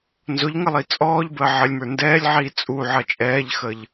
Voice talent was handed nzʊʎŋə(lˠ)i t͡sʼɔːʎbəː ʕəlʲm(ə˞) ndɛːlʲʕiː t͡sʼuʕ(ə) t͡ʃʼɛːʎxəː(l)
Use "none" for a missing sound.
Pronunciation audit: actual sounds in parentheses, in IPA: lˠ, ə˞, ʌ, ʎ

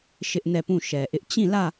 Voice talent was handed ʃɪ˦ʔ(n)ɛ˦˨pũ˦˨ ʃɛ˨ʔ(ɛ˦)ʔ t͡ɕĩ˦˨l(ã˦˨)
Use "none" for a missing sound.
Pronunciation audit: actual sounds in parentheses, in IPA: n, ɪ˦, ä˦˨

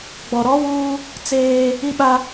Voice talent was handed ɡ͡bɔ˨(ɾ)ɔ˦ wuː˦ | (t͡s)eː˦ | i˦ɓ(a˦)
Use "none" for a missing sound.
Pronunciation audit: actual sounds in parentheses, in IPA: ɾ, t͡s, a˦

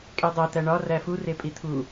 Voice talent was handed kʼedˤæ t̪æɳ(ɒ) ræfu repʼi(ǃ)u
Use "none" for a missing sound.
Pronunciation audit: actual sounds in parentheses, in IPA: ɒ, t̪ʰ

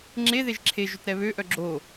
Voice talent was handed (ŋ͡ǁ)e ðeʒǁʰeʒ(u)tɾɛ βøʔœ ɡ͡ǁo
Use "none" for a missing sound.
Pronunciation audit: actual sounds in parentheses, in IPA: ŋ͡ǁ, ø

